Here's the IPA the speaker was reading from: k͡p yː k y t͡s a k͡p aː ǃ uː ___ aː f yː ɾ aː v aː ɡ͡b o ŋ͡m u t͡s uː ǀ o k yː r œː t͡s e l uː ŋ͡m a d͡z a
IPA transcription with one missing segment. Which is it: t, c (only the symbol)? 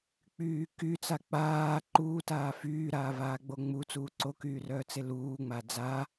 t